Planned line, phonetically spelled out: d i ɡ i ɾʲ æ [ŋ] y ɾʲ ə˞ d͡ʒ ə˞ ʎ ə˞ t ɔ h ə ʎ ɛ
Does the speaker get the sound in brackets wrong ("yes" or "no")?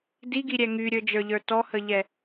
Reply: no